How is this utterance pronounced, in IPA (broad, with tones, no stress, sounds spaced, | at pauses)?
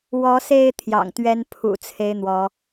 w ɔ˨˦ s e˥˨ ɪ̯ t̪ʰ j ɑ̰˨˩ ŋ t̪ ɥ ɛ˦ n pʰ ṵ˨˩ t͡sʰ e˨˦ ɪ̯ n̪ w ɔ˨˦